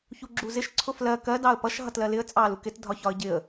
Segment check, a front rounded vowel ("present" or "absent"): absent